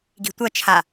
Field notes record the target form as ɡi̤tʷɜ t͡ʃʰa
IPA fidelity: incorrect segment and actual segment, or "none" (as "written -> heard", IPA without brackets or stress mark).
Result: none